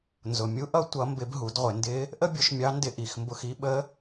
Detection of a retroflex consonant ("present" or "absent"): absent